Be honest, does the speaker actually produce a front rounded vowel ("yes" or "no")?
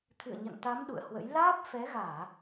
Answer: no